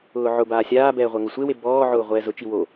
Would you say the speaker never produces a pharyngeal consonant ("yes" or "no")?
no